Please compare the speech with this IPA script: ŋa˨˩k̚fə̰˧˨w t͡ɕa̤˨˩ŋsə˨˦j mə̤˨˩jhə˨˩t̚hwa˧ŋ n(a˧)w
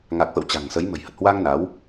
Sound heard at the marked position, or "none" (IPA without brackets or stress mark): a˨˦